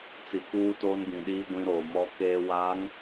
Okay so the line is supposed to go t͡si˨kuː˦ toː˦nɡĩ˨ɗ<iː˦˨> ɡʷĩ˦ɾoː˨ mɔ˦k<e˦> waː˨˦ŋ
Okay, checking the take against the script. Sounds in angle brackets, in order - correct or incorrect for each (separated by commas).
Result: incorrect, incorrect